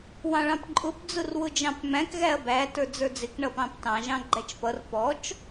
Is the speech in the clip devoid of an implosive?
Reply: yes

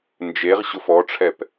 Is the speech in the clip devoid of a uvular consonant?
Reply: no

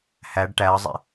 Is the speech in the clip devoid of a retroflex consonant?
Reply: no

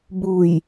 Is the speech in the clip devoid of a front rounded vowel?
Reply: yes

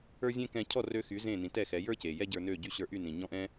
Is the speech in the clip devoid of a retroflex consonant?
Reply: yes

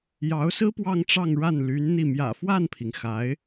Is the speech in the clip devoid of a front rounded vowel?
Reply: no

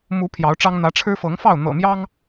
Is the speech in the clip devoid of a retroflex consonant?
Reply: no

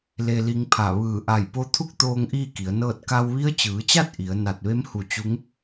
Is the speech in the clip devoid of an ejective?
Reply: yes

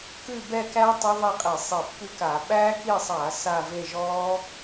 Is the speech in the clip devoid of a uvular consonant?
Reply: no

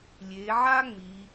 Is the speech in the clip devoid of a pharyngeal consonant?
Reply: no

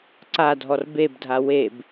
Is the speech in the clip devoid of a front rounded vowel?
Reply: yes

